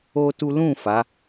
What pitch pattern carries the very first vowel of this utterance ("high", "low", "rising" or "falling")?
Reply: high